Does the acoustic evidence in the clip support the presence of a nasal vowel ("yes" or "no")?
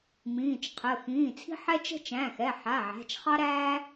yes